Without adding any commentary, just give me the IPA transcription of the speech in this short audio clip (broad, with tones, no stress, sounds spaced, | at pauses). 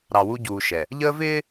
ɾ ɑ˨ w u˦ ɟ uː˨ ʃ ɛ˨ | ʎ əː˦ v ɪː˦